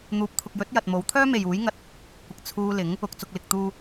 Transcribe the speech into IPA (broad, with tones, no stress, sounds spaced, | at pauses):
n̪ uː˨˥ p̚ t̪ʰ ʊ˨ k̚ j ɵ˨˥ t̚ j ɐ˨ t̚ m o˨˥ w t̪ʰ œː˥ m e˨ j uː˨˥ j ŋ ɐ˨ t̚ | kʷ ɪ˨ k̚ t͡sʰ uː˧ l ɪ˨˥ ŋ | ʊ˨ k̚ t͡s ʊ˨ k̚ l ɪ˨ k̚ t̪ uː˧